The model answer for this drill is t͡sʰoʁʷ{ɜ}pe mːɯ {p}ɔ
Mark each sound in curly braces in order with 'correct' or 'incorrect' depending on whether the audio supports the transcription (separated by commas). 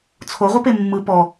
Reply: correct, correct